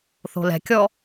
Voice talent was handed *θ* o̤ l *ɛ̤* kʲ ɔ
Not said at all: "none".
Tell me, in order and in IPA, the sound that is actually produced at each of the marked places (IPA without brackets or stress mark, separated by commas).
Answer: θ, ɛ̤